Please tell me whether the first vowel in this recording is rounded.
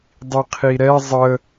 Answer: no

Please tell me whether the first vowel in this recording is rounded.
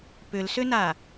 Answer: yes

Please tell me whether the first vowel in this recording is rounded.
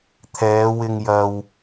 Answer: no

